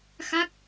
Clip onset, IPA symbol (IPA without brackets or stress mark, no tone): x